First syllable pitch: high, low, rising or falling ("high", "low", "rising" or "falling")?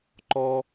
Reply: high